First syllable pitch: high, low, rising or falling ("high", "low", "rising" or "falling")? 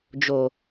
low